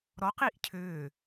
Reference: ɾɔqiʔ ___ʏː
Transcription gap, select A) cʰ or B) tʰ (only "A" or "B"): A